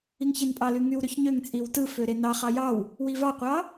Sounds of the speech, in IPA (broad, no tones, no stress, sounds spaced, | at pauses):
i ŋ ç e n pʼ ɑ l y ŋ y w ɾ ø ç ɲ ø ŋ t͡sʼ i w t ɯ f ø ɾ e n ɑ χ ɑ j ɑ w | w i v ɑ qʷ ɑ